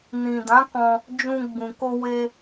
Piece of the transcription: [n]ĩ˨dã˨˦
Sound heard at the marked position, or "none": n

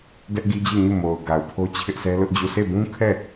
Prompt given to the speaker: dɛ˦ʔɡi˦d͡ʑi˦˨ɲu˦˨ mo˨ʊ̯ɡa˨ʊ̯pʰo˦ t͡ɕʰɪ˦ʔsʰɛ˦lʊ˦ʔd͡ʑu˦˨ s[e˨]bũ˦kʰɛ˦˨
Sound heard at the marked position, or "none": e˦˨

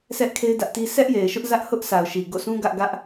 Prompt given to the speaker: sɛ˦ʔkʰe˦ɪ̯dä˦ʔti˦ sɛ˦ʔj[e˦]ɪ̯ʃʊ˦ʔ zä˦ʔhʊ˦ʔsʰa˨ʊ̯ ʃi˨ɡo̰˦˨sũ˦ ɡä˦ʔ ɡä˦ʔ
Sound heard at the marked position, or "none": e˨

